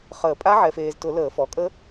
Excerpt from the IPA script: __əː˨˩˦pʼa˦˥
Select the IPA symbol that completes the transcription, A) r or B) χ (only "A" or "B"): B